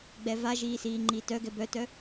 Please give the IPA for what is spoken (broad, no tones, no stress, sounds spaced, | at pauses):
ɡ͡b ɛ v a ʒ iː s iː ŋ͡ǃ iː t œ ɡ ɛ b œ t œ